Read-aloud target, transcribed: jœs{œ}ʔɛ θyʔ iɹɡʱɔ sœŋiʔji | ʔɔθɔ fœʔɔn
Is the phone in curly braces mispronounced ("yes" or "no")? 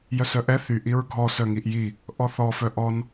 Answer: no